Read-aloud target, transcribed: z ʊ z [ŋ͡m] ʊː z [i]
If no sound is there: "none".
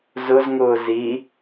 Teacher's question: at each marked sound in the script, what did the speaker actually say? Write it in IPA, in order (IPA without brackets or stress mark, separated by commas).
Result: ŋ, i